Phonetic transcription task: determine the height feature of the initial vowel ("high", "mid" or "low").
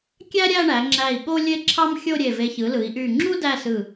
low